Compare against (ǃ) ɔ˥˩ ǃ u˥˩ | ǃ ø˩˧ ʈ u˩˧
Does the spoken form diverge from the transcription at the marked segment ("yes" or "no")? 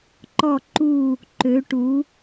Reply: no